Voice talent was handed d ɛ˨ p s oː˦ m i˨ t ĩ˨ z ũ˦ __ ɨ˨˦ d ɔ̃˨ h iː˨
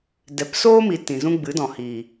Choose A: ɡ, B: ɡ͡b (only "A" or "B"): B